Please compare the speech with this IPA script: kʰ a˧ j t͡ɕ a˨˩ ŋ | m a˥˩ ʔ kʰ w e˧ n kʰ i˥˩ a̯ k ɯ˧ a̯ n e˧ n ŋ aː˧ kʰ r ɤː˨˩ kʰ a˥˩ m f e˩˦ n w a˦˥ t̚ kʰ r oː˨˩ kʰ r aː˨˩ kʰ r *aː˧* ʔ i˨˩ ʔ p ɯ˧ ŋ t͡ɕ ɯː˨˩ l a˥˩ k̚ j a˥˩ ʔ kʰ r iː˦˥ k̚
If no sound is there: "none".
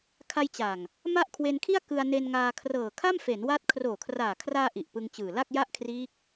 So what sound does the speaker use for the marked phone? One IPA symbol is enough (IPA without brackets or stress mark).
aː˧